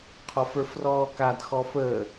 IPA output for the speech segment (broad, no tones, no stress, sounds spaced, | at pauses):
qʰ ɔ f ə˞ f r ɔː k a d x ɔ f əː